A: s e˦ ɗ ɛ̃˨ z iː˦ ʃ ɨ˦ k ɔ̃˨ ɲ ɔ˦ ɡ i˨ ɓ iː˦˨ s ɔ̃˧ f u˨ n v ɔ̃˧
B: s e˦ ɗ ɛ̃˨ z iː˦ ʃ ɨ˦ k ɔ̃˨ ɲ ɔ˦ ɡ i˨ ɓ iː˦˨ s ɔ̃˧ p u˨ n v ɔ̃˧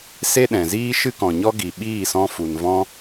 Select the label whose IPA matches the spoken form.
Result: A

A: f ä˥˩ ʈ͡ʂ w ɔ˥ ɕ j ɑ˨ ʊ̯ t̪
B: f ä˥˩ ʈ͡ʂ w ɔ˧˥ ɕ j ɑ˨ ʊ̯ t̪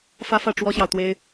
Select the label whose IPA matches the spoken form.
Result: A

